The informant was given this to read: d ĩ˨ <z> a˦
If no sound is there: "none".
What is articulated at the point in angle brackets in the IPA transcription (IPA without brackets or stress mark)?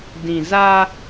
z